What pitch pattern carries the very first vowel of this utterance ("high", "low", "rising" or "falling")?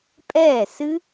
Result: falling